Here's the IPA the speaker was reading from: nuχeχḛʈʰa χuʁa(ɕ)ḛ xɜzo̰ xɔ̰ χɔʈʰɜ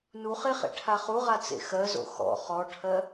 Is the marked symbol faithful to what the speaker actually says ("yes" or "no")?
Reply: no